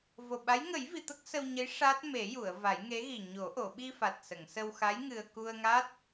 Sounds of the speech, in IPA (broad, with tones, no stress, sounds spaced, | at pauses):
v o˨˩ ɓ a˧˥ j ŋ ə˨˩˦ j v i˨˩˨ t̪ ə˦˥ k̚ s ə˧ w ɲ ə˧˥ j ʂ a˦˥ t̚ m e˨˩˦ j u˨˩˨ ə̯ v a˨˩˦ j ŋ e˧˥ ɣ i˨˩ ɲ o˨˩˦ ʔ o˨˩˨ ɓ i˧ f a˨˩ t̚ s ə˨˩˨ ŋ s ə˧ w x a˧˥ j ŋ ɨ˧ ə̯ k u˧ ə̯ ŋ a˦˥ t̚